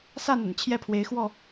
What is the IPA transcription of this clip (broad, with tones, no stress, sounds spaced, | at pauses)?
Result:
s a˥˨ n ə̰˨˩ n t͡ɕʰ j ɛ˦ pʰ w e˨˦ ɪ̯ x w ɔ˥˨